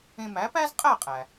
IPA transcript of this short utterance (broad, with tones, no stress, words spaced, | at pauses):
ẽ˧mæ˩˥pæ˥zqʼæ˥˩ qʼæ˩